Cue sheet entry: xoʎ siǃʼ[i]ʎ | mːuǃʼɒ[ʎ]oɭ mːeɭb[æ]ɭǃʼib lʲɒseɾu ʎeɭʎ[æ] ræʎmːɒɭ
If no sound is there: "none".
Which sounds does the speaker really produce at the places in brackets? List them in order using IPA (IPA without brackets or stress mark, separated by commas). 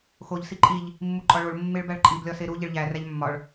i, ɭ, æ, æ